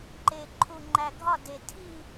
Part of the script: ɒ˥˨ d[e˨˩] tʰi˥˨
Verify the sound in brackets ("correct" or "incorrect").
correct